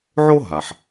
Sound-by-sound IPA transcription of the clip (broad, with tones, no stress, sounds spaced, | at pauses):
ʕ o˥ ɦ a˩ ħ